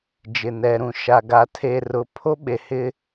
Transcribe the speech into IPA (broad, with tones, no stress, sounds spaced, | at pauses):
d͡ʒ ɪ˨ n ɛ˨ ɾ ũ˨ ʃ a˨ ɡ a˨ tʰ e˨ r ʊ˨˦ pʰ o˦ ɓ e˨ h ɪ˦